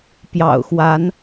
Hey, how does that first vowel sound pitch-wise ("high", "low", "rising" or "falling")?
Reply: low